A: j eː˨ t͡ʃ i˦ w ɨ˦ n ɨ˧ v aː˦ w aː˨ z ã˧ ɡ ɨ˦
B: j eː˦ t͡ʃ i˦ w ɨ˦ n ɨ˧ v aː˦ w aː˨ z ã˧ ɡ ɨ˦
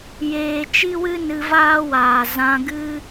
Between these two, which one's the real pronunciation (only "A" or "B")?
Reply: A